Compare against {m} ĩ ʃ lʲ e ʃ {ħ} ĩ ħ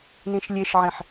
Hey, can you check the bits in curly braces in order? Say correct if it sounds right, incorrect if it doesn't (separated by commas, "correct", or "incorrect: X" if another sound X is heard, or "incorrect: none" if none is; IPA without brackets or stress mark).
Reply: incorrect: n, incorrect: ʕ